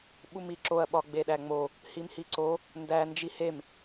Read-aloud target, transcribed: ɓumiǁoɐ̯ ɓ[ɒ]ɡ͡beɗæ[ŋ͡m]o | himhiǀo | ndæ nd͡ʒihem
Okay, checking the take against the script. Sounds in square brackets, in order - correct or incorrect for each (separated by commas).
correct, correct